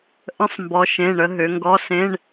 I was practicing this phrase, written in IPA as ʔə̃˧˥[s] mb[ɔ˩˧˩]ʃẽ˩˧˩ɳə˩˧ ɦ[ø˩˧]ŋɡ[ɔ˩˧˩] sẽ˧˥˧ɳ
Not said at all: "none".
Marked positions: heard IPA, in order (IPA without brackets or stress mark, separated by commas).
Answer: sˤ, ɔ˩˧, ø˩˧, ɔ˧˥˧